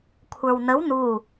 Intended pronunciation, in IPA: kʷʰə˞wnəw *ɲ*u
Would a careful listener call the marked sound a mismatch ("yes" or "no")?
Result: yes